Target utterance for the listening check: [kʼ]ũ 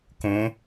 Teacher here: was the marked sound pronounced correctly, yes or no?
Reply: no